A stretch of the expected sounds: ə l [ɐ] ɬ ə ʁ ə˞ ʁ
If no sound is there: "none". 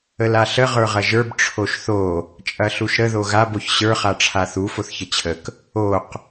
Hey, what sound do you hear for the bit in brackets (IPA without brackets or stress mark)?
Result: a